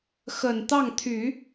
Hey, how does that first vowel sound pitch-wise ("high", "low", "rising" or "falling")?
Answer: low